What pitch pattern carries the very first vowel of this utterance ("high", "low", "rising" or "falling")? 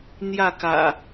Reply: falling